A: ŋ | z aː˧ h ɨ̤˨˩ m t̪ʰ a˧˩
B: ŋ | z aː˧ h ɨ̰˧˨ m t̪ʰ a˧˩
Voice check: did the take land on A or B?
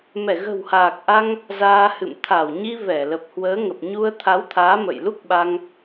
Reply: B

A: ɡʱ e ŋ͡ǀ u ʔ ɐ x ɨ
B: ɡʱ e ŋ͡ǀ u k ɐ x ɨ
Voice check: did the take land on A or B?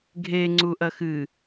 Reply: A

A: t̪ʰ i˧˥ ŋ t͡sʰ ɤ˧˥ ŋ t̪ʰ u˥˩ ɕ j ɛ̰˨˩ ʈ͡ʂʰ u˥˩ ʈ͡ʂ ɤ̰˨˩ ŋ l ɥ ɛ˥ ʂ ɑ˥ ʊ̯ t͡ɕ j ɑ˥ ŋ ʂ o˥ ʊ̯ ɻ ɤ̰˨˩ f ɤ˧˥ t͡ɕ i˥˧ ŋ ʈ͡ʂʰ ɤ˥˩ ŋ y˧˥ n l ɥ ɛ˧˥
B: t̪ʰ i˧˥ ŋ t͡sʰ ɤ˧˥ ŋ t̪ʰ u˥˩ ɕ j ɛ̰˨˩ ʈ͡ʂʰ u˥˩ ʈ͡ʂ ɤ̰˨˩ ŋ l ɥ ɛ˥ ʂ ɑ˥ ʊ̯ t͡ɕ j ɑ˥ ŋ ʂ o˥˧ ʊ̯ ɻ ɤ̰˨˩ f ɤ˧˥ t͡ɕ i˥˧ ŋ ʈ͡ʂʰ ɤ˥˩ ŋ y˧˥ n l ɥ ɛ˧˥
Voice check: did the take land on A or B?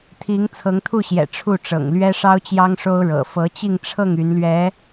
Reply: A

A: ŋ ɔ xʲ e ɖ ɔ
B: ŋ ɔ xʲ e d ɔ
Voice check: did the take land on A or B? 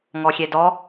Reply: B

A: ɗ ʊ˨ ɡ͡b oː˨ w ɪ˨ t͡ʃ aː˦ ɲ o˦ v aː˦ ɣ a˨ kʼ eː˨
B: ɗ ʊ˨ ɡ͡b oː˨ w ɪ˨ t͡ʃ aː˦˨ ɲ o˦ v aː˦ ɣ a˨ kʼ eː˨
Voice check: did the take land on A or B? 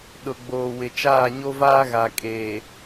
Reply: B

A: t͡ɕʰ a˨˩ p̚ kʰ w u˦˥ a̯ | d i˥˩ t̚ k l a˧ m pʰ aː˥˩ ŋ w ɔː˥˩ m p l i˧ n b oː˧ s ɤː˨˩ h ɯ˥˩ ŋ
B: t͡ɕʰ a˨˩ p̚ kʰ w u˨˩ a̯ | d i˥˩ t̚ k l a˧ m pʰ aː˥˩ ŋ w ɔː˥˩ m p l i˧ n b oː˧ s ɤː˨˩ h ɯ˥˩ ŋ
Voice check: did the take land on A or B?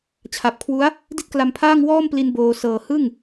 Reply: A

